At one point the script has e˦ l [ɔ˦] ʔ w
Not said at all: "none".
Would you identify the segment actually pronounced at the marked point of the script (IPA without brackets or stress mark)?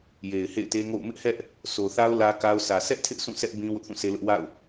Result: ʊ˦